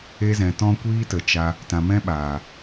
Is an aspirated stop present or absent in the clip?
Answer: absent